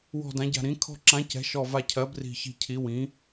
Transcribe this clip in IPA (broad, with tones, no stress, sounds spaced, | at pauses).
w ɔ̤˧˩ d ã˩˥ ɟ a̤˧˩ ɾ ĩ˩˥ kʰ ɔ̤˧˩ ǁ ã˩˥ c ɛ̤˩˥ ʃ ɔ˧˩ v a˧˩ cʰ ɜ˩˥ b r i̤˧˩ ç i̤˧˩ cʰ i˩˥ w ĩ˩˥